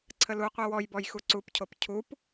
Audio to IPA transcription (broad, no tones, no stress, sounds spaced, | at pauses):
ǀʰ ə l u qʷ i w ɔ j b ɔ j x u ǀ u p cʰ o p cʰ u p